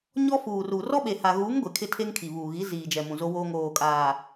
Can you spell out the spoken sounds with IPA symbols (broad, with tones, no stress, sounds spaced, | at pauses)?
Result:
ɲ ɔ˦ f uː˨ r u˨ r ɔ˦ ɓ e˨ h a˨ ɣ uː˨˦ ŋ ɡʷ e˨ kʰ ɪ˦ tʰ e˦ ŋ kʰ i˨ β uː˨ ɣ i˨˦ z iː˨ d͡ʒ ɛ˨ m ũ˨ z o˦ w oː˦ ŋ oː˨ kʼ aː˨